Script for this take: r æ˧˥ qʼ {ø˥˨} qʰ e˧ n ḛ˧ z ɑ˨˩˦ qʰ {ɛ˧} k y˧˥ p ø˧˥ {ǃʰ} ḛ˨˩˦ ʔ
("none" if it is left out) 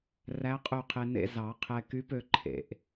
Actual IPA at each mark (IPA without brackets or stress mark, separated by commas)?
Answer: ø˥˨, ɛ˧, ǃʰ